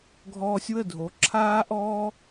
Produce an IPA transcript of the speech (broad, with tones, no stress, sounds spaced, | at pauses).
ɡʱ ɔː˧ sʲ w ə˥˩ dʱ o˩˥ ǁʰ aː˥ ʔ ɔː˥